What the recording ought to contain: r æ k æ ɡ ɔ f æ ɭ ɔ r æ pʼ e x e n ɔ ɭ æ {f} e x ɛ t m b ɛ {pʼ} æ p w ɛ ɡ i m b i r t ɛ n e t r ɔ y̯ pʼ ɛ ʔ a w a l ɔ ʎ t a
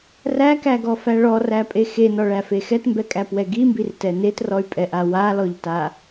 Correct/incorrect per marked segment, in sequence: correct, incorrect

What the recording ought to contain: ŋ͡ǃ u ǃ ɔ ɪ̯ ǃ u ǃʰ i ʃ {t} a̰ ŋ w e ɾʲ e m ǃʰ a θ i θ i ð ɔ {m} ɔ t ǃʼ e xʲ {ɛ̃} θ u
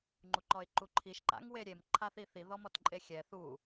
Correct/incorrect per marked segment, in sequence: incorrect, correct, incorrect

